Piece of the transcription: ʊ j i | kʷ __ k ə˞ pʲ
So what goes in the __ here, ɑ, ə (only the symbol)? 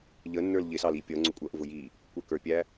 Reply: ə